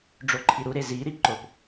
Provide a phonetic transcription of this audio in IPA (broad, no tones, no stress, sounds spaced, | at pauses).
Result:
ɖ͡ʐ o ǃʰ i ɾ u ɾ e z i ɾ i ǃ o p